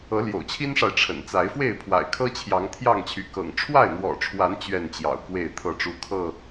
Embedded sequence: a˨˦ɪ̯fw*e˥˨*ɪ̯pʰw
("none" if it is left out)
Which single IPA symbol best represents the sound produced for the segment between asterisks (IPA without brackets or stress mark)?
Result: e˥˨